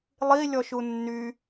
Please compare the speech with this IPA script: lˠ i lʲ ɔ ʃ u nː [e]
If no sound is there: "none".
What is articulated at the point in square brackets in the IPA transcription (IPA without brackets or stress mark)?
y